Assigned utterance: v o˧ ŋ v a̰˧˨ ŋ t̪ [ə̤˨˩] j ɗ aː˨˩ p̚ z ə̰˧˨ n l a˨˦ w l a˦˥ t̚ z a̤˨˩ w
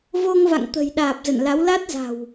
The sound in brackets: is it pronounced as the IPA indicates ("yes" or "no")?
yes